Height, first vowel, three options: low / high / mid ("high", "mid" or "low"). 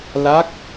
low